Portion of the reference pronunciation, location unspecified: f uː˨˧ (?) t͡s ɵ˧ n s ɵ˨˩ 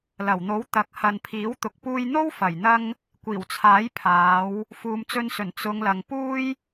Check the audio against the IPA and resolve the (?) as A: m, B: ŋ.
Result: A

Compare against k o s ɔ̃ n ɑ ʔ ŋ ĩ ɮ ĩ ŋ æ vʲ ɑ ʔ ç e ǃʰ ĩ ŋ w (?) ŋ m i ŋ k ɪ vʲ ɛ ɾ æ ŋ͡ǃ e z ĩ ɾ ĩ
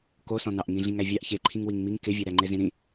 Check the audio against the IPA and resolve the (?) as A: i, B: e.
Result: A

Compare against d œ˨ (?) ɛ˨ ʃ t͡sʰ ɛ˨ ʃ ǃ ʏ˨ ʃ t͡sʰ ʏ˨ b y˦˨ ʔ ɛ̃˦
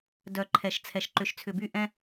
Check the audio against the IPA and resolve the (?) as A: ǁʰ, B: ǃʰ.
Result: B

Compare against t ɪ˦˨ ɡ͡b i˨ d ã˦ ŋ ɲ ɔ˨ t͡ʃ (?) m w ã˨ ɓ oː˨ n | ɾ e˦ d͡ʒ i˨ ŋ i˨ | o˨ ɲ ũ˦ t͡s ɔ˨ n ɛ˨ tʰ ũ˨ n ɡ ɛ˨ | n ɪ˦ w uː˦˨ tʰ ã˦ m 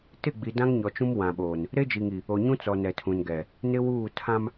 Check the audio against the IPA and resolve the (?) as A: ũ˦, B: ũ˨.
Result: A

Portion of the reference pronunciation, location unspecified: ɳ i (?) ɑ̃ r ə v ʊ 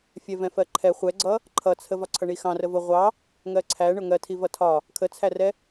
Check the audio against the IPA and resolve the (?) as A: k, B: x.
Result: B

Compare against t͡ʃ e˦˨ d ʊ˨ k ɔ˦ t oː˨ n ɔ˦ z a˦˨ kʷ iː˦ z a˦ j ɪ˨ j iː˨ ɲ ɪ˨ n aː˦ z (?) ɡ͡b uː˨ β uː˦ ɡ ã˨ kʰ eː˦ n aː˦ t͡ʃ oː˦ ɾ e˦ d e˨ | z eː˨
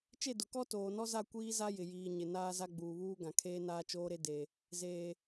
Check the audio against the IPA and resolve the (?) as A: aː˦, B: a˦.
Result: B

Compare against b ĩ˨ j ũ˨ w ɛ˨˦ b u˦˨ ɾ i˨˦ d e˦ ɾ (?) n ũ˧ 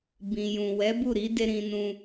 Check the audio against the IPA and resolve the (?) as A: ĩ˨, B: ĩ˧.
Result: B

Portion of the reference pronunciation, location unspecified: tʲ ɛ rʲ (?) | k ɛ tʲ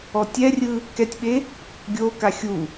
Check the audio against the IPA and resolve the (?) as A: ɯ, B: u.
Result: A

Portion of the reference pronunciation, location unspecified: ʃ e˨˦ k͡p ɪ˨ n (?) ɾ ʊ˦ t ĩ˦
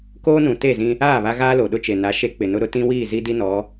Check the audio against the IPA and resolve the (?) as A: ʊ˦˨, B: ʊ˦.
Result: B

